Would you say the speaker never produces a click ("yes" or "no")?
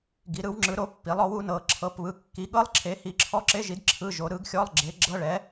no